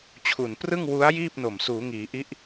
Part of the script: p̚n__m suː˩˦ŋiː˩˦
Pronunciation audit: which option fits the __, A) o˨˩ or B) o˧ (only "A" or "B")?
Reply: A